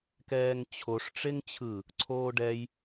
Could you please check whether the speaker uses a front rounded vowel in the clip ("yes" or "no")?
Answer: no